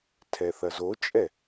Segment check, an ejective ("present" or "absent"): present